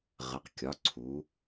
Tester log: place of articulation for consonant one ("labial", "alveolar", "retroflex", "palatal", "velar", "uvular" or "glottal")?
uvular